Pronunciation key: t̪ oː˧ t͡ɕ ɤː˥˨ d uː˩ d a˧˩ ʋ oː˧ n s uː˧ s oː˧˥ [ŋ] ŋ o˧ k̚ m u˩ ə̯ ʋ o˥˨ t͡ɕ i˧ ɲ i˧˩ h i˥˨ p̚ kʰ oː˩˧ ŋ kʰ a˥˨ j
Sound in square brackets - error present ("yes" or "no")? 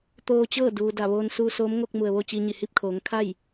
yes